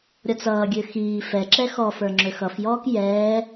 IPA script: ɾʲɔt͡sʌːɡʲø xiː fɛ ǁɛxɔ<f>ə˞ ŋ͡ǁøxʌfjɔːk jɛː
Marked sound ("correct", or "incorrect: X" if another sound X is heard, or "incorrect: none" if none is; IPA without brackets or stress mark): correct